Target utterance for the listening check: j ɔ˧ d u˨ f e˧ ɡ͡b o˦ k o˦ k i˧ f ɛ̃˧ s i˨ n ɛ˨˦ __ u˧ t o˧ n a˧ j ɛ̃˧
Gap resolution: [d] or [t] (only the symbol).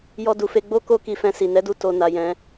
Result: d